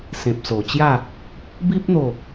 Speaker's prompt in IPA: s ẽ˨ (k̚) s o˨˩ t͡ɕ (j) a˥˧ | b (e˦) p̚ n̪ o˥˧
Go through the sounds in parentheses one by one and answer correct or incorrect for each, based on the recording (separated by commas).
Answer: incorrect, correct, incorrect